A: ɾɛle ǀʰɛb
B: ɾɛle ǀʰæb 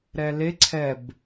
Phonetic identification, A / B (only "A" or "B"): A